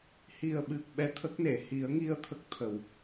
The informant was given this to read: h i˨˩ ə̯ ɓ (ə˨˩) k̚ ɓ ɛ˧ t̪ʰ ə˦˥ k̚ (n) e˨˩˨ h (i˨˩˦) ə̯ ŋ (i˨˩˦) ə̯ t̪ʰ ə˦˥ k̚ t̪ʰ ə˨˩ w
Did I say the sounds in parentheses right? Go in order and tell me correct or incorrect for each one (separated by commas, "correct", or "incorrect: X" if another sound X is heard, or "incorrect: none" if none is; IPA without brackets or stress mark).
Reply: incorrect: ɨ˨˩, correct, correct, incorrect: i˧